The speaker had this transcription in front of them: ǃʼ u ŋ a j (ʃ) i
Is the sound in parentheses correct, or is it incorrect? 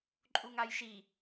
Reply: correct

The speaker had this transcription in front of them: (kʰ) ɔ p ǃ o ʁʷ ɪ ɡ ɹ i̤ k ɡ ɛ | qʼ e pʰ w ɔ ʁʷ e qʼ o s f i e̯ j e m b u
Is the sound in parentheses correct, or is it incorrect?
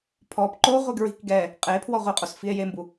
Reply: incorrect: pʰ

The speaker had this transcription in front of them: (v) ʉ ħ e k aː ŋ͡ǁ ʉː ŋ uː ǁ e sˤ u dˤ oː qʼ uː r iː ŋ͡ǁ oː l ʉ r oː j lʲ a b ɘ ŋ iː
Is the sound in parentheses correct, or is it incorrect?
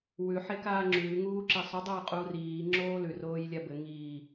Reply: incorrect: w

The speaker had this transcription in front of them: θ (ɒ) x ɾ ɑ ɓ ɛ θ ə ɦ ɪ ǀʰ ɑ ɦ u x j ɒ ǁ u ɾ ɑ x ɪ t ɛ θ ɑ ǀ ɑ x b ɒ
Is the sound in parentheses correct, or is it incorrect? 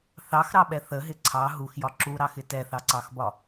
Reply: incorrect: ɑ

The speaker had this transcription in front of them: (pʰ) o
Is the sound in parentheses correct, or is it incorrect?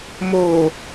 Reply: incorrect: m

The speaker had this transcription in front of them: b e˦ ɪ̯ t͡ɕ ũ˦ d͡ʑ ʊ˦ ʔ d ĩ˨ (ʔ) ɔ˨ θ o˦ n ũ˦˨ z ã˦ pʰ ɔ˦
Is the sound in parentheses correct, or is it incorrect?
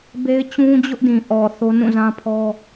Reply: correct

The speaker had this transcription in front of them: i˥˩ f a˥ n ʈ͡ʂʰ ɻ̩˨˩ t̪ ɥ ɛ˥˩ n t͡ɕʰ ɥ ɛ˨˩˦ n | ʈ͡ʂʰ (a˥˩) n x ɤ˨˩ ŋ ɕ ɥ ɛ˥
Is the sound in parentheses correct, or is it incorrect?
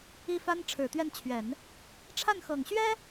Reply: correct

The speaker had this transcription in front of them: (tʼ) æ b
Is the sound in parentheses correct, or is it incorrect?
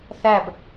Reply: incorrect: θ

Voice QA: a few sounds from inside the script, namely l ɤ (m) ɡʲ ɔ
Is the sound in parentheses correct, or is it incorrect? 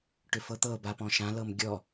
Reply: correct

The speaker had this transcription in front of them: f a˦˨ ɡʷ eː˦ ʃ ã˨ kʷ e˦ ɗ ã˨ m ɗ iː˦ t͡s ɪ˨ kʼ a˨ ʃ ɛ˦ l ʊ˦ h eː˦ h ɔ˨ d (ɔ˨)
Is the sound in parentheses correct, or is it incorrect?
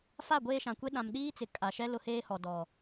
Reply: correct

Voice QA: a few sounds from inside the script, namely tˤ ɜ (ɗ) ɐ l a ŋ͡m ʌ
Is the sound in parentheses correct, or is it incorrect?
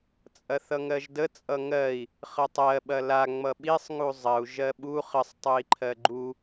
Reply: incorrect: ɓ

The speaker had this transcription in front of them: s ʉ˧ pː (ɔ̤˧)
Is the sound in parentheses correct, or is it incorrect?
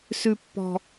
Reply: correct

